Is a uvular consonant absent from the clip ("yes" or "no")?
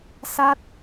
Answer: yes